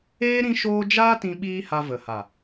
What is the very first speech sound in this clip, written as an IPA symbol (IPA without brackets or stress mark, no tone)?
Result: eː